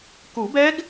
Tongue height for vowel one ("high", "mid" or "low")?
high